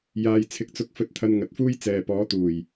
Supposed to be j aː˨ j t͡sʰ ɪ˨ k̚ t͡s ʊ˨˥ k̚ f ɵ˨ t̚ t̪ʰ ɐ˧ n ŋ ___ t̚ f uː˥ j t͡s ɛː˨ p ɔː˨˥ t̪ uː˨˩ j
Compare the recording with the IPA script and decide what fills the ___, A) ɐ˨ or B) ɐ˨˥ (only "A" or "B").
A